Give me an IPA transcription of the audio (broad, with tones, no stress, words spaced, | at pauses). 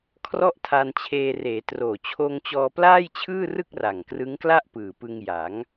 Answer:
kʰrɔ˦˥ʔ tʰa˧nt͡ɕʰeː˧ reː˩˦troː˨˩ t͡ɕʰoː˧ŋt͡ɕɔː˧plaː˥˩jt͡ɕʰɯː˥˩ rɯ˥˩k̚ra˨˩ŋkrɯ˦˥ŋkla˥˩ʔ pɯː˨˩pɯ˧ŋja˩˦ŋ